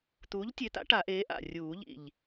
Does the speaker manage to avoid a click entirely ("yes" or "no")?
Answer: yes